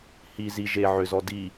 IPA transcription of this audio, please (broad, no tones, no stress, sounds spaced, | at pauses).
h i z i ʒ e ʕ ʏ z ɔ d i